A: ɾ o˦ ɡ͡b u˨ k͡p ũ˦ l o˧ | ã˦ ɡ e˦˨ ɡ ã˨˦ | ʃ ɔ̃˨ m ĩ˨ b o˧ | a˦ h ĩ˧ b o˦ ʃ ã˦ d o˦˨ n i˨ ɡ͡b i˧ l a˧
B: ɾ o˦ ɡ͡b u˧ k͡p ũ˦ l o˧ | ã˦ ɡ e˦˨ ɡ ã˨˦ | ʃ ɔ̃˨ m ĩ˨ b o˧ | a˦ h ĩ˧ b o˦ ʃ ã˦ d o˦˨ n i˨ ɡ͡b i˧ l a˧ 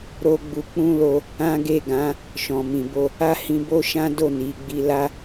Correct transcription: B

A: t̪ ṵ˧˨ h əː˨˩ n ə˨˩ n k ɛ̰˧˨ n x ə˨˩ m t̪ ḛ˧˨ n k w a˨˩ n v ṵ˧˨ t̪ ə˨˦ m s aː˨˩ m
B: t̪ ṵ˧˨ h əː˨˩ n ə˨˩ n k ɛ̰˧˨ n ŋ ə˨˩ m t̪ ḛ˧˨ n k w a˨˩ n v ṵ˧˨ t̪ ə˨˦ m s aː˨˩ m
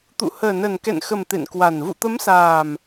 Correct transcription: A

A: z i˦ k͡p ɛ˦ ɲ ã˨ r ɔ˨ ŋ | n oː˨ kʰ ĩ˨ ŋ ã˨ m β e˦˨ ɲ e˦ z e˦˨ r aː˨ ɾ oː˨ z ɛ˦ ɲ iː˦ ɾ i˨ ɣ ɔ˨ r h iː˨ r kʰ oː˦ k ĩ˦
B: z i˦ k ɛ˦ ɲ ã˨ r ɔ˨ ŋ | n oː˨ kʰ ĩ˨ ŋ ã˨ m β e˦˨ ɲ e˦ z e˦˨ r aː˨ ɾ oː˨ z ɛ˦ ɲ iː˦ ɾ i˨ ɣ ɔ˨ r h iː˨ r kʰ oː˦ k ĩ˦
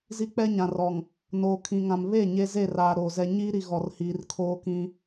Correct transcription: A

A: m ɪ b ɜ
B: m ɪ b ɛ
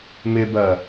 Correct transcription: A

